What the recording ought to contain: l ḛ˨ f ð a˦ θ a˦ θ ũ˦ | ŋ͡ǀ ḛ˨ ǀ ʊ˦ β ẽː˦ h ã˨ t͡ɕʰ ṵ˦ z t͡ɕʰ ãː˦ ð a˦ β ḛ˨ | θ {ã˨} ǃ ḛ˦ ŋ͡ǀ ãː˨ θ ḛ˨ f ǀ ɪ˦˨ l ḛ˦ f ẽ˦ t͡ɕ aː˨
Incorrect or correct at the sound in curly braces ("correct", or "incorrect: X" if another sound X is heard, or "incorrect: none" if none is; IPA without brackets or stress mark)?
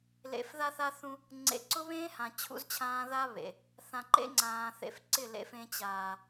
correct